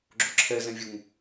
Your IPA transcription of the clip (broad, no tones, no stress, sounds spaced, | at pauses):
ɡ͡ǁ ʊ ǁʰ ɛ z ɛ̃ vʲ ʊ ŋ